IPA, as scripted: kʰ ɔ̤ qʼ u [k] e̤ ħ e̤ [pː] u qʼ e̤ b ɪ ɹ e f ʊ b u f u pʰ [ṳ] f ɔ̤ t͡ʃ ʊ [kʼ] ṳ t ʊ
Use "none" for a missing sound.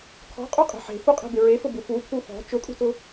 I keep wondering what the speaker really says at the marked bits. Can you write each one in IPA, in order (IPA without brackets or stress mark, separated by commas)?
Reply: qʼ, f, u, kʼ